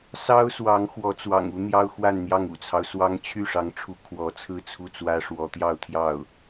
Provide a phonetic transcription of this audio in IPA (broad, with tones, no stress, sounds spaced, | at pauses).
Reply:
s ɑ˥ ʊ̯ s w ɑ˧˥ ŋ x w ɔ˧˥ t͡s w ɑ̰˨˩ ŋ u˥ n̪ j ɑ˥ ʊ̯ x w a˥˧ n n̪ j ɑ˥˩ ŋ ṵ˨˩ t͡sʰ ɑ˦ ʊ̯ s w ɑ˥ ŋ t͡ɕʰ y˥˩ ʂ ɑ˧˥ ŋ ʈ͡ʂʰ u˧˥ kʰ w ɔ˧˥ t͡sʰ ɹ̩˥˧ t͡sʰ u˥˩ t͡s w ä˥ ʂ w ɔ˧˥ t̪ j ɑ˥˧ ʊ̯ t̪ʰ j ɑ˥˩ ʊ̯